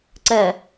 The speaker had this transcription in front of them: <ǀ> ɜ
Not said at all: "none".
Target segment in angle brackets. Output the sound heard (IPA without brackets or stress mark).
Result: ǀ